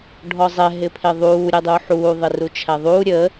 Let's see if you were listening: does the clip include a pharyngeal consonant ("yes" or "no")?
yes